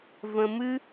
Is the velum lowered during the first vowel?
yes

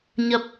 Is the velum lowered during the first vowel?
no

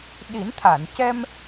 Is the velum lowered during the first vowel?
no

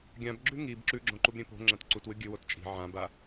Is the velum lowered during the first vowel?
yes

